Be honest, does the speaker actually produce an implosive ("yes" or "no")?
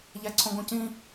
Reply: no